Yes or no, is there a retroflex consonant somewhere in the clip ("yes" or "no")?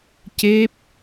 no